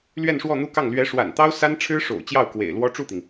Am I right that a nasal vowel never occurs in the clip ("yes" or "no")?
yes